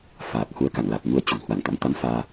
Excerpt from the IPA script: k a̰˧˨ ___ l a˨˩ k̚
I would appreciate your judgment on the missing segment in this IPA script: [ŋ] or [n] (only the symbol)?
ŋ